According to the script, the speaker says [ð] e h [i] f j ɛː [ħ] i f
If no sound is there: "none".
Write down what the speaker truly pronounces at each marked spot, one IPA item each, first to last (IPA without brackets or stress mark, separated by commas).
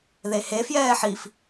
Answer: ð, e, ħ